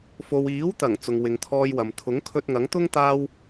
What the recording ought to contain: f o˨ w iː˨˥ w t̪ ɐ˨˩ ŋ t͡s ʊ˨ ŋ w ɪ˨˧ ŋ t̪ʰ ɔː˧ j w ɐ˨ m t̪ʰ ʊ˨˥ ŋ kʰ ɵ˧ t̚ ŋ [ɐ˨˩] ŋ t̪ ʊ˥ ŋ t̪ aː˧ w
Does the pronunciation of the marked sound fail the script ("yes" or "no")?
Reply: yes